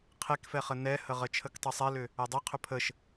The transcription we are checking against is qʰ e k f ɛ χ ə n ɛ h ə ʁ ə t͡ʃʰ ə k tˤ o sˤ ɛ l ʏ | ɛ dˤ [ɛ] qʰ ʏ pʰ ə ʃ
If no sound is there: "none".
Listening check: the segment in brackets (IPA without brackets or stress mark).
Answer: e